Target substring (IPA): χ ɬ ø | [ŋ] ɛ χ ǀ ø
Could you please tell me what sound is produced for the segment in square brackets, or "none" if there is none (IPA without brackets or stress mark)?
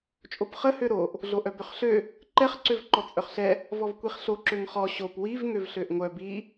ǃ